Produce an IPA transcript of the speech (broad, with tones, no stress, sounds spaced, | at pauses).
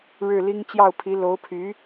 ɻ ɻ̩˥˩ l i˥ ŋ t͡ɕ j ɑ˥˩ ʊ̯ pʰ i˧˥ l o˧˥ ʊ̯ pʰ y˧˥